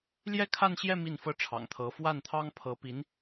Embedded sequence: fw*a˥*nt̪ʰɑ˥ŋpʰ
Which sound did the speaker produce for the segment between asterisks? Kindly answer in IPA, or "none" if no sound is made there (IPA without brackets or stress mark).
a˥˩